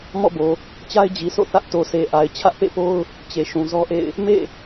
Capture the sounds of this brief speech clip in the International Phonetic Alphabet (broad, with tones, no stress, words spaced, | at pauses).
mɔ̰˦˨bo˨ | t͡ɕa˦ɪ̯d͡ʑi˨sʰo̰˦˨ θä˦ʔto˨se˨ʔa˨ɪ̯ t͡ɕʰä˦ʔpḛ˦˨po˦ʊ̯ | t͡ɕe˨ʃũ˨zɔ˦ʔḛ˦˨ɪ̯ | mḛ˦˨